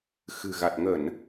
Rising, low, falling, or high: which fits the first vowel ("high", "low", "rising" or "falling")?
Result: low